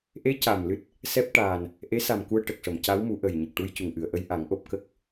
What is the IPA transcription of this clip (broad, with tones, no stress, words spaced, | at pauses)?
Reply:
ʔe˧˥ ca˨˩mlɨ˦˥t̚ | sɛ˦˥p̚ʈaː˨˩n | ʔe˧˥sa˨˩m ku˧ə̯ʈə˨˩k̚ʂə˨˩˨m ca˧˥wmu˨˩˦ ʔə˨˩jɲə˨˩k̚ʈu˧j cu˨˩ŋʔɨ˨˩˨ə̯ʔə˧j ʔa˨˩˦ŋʔo˨˩p̚kə˦˥k̚